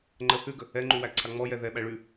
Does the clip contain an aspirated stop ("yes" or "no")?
yes